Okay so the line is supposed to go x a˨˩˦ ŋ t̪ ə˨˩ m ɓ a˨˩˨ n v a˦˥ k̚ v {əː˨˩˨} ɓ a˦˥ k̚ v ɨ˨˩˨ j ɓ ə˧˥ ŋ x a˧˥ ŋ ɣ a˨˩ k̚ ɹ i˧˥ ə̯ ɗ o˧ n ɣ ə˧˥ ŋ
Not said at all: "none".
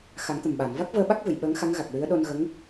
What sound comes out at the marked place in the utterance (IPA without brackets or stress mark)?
əː˧